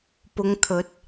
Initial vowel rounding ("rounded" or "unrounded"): rounded